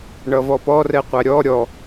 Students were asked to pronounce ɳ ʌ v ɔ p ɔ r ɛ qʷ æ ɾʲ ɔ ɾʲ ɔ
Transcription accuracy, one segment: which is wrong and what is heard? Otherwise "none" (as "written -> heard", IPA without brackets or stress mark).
none